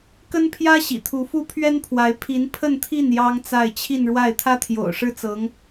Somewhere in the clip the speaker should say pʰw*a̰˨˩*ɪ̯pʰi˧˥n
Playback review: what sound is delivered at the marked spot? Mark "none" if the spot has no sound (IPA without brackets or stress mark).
a˧˥